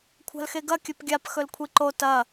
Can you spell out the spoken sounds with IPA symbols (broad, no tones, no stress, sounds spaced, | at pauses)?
kʷʰ a̤ l x e ɡ ɐ kʲ ɵ p ɡʲ a p x ɵ l kʷʰ i ǃ o t ɐ